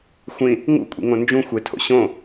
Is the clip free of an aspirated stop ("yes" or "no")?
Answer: no